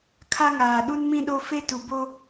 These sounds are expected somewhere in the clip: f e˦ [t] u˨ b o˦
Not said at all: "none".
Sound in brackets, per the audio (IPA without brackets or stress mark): t